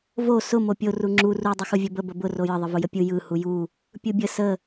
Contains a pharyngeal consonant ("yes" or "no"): no